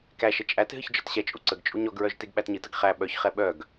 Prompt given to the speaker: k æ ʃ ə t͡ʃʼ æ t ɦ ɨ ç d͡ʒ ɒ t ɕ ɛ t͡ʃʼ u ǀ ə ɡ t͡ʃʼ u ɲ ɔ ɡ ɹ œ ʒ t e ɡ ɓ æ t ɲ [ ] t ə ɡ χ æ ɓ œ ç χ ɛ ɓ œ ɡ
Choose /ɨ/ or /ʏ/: ɨ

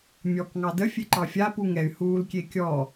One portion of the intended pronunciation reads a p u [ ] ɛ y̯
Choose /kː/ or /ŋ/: ŋ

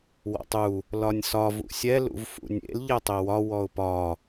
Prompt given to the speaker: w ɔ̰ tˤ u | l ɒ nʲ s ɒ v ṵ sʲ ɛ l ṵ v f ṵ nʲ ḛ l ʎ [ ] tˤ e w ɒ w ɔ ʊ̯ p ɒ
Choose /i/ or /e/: e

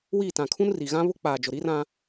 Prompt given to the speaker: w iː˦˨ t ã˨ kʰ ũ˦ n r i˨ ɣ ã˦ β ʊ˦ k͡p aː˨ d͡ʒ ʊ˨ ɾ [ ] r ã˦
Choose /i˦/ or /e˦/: i˦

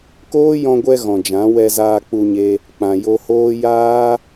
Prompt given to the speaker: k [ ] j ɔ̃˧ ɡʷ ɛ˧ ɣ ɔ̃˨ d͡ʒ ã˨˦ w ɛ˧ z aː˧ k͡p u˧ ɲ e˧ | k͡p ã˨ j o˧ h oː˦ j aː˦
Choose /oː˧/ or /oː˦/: oː˦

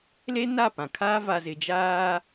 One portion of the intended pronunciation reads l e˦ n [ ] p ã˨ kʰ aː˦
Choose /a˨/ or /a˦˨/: a˦˨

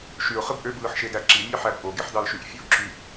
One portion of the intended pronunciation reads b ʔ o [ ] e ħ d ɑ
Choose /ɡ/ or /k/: ɡ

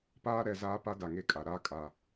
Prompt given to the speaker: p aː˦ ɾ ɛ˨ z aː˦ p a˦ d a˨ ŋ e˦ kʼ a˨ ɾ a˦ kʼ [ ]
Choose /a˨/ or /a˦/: a˦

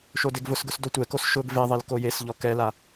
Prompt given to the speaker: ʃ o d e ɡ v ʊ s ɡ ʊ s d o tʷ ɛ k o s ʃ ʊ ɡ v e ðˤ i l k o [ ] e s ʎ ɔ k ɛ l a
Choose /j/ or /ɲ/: j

